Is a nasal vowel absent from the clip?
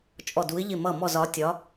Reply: yes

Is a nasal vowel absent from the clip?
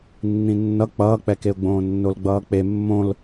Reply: no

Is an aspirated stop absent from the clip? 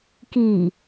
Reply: yes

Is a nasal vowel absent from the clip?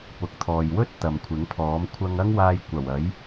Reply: yes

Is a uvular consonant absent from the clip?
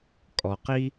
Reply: no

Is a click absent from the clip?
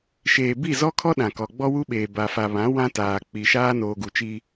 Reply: yes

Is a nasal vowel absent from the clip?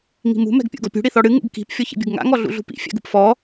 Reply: yes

